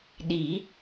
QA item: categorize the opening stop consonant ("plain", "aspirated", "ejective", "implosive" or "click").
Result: implosive